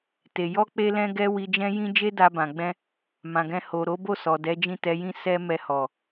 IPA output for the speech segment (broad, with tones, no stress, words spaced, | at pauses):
te˨ jɔ˧k͡pe˧ lɛ̃˦ɡɛ˦ wi˧d͡ʒɛ̃˦jĩ˦ d͡ʒe˦da˧bã˨ɡ͡bɛ̃˧ | mã˨ɡɛ̃˧ ho˨ ɾo˨˦bo˦˨sɔ˨ dɛ˨˦d͡ʒĩ˦˨tɛ˨˦jĩ˦ sɛ˦ mɛ˧hɔ˨